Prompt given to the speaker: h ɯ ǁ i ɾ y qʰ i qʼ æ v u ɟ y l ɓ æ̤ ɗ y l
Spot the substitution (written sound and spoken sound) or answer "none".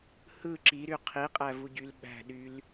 none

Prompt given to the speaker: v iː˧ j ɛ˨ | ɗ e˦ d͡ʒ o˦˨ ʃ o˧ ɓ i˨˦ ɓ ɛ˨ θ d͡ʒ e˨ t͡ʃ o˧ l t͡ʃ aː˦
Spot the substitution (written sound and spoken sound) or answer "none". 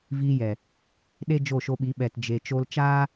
θ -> t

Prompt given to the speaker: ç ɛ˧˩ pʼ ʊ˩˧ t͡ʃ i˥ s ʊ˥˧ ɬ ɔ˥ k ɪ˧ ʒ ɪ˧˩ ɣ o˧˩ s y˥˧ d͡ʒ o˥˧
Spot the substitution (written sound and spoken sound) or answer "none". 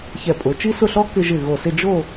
y˥˧ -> ɪ˥˧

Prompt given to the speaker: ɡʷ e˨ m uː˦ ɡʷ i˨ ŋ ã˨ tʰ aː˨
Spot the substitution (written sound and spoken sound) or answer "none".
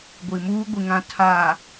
e˨ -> i˨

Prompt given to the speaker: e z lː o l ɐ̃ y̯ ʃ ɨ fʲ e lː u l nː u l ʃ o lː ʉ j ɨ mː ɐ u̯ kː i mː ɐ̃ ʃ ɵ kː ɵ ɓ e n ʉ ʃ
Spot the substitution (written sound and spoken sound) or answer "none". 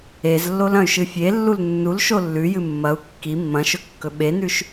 none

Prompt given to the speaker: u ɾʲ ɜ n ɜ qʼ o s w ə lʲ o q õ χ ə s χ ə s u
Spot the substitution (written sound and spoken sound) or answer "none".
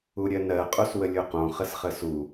none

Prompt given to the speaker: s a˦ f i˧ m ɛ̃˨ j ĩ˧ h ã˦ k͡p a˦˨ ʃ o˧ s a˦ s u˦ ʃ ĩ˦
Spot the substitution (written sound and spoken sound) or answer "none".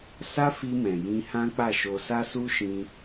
none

